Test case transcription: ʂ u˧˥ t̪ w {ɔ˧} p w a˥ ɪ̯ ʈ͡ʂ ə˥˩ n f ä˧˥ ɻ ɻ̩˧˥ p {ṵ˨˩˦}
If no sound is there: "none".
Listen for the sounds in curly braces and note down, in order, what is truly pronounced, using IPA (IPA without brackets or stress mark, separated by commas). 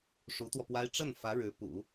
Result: ɔ˧, ṵ˨˩˦